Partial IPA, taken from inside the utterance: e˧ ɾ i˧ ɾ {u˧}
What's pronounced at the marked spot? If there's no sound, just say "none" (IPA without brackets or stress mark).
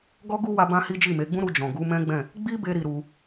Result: u˧